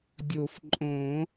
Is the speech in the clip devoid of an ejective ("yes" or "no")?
no